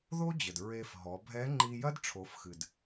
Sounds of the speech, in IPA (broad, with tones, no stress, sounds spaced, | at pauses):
ð o˥ d͡ʑ ɘ˩ d ɹ e˧ f ɦ ɔ˩˧ bʱ ɛ˧˥ ŋ͡ǃ i˧ j ɐ˥ d ʈ͡ʂʰ o˩˧ f x ɨ˩ d